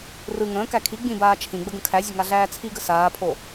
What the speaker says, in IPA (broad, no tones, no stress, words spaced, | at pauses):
rɯ ŋə̃ːkæ kʰi ɡ͡bĩbaː t͡ʃʰĩɡ͡bə ɡə̃kʰæzʲə ŋaɮæːt͡sʰiɡə saːpʰo